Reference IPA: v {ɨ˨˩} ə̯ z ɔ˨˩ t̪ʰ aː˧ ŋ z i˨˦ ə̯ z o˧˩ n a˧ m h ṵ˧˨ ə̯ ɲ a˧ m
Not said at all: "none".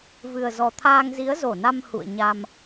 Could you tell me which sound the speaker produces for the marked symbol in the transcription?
ɨ˨˩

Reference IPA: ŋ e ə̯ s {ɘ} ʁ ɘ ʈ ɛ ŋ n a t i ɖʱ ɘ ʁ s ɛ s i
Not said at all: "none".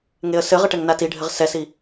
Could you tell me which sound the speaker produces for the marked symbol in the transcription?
ɘ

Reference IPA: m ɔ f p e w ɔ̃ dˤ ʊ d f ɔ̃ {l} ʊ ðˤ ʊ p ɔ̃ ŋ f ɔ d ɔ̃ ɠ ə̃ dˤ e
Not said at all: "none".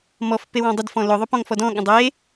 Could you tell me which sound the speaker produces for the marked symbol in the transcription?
l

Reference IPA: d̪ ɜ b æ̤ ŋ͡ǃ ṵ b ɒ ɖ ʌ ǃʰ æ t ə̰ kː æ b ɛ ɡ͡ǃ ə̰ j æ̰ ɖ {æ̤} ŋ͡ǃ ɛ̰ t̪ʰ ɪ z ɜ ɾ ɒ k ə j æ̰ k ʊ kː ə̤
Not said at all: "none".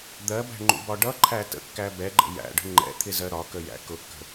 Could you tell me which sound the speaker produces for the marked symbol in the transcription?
ə̤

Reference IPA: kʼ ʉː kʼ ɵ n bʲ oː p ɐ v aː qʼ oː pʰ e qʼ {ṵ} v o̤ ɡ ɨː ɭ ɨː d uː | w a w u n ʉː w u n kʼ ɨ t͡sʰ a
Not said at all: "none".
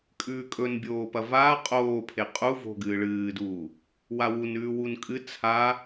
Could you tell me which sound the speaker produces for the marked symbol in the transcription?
u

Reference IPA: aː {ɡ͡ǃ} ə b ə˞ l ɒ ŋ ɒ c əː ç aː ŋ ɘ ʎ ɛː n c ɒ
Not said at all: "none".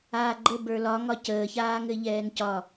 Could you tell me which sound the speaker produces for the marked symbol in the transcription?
ɡ͡ǃ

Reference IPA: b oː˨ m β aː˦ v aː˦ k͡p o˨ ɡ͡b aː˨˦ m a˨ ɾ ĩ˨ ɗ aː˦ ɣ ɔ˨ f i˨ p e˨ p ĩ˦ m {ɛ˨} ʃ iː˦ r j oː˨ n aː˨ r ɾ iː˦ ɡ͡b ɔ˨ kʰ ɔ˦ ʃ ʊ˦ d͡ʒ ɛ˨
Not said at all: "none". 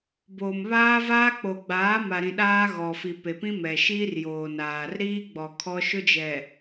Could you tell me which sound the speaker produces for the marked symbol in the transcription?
ɛ˨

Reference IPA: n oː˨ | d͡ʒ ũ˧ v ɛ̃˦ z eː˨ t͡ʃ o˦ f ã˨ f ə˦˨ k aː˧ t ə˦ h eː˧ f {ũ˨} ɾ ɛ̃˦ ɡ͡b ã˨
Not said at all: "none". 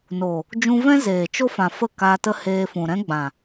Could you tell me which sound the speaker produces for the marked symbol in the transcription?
ũ˨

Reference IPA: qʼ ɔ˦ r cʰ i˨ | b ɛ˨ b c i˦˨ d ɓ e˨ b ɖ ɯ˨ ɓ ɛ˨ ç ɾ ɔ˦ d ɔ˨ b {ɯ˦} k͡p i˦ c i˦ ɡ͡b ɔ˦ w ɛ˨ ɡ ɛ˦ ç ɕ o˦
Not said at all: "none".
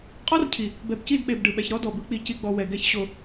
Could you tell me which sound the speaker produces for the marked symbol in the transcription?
ɯ˦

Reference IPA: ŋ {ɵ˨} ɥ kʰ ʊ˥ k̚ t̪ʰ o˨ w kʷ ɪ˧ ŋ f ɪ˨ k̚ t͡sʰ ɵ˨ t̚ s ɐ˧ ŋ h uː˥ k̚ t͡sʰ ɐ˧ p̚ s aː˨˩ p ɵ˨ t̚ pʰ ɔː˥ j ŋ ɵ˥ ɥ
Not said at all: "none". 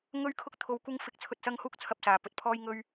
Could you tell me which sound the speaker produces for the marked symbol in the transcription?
ɵ˥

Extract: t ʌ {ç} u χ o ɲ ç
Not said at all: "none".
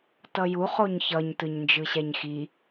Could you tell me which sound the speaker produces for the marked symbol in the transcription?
j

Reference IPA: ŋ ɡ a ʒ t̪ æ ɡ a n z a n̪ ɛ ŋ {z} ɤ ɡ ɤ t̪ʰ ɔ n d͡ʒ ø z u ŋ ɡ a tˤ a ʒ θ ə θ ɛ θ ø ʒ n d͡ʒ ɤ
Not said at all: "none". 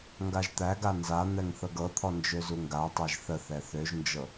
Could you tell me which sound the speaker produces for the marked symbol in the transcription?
θ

